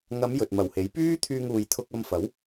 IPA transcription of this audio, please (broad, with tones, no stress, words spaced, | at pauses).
ŋɐ˨˧m jɵ˨t̚mɐ˨˩whe˨˥j pyː˥ t̪ʰyː˧ŋuː˨j t̪ʰʊ˧k̚ɐ˧mfɐ˨˥w